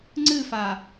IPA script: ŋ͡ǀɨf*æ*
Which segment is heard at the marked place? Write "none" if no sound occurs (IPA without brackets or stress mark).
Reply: a